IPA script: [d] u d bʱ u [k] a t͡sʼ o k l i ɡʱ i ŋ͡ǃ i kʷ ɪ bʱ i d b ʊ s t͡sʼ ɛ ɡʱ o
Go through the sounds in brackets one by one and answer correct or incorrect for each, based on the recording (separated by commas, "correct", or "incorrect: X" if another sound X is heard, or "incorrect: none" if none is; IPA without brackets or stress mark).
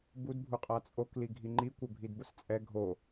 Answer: incorrect: b, incorrect: qʼ